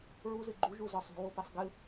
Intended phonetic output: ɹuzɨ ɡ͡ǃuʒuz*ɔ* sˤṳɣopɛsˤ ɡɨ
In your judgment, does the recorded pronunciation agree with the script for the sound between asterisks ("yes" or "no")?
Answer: yes